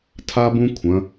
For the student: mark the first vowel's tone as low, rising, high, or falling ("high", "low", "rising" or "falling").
high